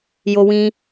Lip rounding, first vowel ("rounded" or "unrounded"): rounded